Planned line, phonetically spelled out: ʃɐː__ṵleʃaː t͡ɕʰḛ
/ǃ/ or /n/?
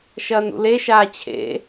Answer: n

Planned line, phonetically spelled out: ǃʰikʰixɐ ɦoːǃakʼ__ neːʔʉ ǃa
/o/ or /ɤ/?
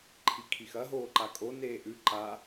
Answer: o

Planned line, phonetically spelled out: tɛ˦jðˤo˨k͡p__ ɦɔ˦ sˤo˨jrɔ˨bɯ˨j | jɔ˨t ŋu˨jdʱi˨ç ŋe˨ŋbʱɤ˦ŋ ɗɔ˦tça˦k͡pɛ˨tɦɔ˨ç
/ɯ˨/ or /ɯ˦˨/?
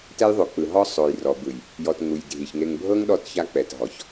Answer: ɯ˨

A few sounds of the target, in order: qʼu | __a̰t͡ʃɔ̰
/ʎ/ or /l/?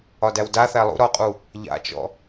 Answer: ʎ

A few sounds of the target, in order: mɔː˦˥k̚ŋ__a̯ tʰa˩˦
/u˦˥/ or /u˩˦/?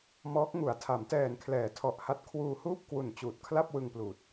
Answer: u˩˦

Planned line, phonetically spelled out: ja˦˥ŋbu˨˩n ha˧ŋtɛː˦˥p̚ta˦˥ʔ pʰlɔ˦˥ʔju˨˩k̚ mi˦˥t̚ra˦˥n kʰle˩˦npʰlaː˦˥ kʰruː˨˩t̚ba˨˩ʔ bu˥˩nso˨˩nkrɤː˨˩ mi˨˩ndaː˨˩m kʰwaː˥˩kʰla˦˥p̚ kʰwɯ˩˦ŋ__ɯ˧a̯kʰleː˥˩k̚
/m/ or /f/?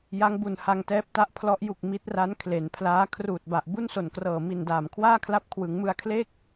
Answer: m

